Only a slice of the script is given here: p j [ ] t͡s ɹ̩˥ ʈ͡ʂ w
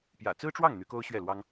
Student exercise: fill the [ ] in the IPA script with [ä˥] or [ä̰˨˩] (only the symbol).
ä̰˨˩